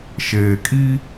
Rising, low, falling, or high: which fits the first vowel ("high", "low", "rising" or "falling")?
low